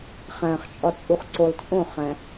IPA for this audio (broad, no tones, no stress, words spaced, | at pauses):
χæ̃χt͡ʃʼɒt͡sʼuχǀolˠ t͡sʼõχæ̃